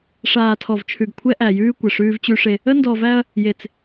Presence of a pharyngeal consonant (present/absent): absent